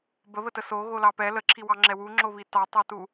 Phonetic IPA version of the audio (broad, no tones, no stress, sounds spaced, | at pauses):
b ə β ə t ə s o ɣ o l ɑ p ɛ l ə ǁʰ i w ɑ ŋ͡ǁ ɛ w u ŋ͡ǁ o β i t ɑ tˤ ɑ t u